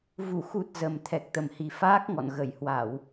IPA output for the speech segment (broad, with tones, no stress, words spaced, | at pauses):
vu˧˩xu˨˩t̚ zə˨˩mt̪ʰɛ˨˩k̚ t̪ə˨˩mhi˨˩ faː˦˥k̚ŋɔ̰˧˨n ɣə˧˩j hwa˧˩˨w